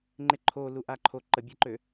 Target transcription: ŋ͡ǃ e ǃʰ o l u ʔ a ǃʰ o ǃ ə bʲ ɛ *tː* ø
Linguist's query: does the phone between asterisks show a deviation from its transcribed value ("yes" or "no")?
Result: yes